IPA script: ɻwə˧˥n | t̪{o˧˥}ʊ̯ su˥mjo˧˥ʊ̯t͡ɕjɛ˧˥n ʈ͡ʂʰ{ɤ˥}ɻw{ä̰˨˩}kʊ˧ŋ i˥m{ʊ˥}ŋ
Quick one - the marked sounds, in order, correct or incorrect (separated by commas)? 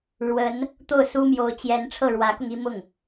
incorrect, incorrect, incorrect, incorrect